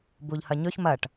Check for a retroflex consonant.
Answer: present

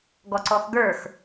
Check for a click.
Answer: present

